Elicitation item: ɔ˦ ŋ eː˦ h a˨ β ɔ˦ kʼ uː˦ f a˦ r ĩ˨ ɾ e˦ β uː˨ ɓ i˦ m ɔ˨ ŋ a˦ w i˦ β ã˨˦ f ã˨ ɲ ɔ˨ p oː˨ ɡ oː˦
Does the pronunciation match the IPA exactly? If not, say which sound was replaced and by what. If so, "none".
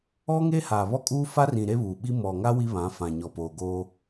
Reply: none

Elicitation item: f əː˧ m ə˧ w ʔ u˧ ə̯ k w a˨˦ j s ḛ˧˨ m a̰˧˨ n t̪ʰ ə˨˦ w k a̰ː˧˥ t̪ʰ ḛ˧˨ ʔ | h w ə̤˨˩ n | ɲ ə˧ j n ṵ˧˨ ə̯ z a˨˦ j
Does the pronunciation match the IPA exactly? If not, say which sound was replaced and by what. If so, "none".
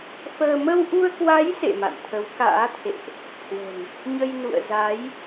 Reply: none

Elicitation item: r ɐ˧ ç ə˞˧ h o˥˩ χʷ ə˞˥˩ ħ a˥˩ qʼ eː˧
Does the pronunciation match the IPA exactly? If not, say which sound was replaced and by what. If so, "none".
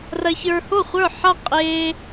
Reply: none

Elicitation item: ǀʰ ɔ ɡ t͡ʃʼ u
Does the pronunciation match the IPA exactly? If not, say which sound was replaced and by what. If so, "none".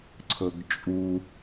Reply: ɔ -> ɤ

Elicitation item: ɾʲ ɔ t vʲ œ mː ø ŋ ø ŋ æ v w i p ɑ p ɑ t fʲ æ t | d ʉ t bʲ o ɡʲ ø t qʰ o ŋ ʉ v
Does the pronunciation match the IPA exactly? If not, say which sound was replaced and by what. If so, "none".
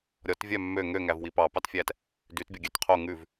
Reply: none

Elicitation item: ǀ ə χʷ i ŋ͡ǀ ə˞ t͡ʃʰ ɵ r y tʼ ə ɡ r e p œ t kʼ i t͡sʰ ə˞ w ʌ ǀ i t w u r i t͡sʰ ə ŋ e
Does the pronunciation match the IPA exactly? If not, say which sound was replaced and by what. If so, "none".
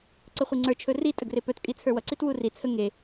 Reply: y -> i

